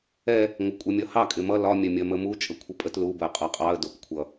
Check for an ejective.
present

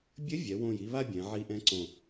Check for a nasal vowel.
present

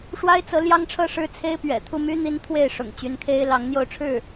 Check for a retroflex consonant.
present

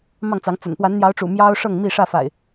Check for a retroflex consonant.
present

